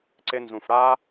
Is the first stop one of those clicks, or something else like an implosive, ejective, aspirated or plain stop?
click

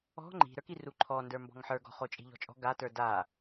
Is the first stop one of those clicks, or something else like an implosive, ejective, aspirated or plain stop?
click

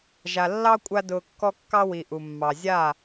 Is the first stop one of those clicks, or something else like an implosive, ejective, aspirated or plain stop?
ejective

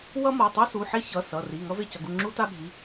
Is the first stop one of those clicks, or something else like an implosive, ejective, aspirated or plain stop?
plain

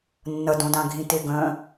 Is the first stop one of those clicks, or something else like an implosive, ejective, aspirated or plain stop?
plain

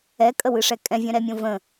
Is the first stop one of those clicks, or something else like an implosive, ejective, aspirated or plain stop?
ejective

